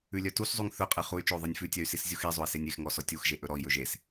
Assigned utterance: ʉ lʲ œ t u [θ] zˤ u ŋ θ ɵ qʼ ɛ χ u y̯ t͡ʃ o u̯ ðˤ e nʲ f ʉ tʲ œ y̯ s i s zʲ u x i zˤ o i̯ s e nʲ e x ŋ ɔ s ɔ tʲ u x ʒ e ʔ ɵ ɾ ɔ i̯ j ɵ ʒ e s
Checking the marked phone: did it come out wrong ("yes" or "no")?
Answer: yes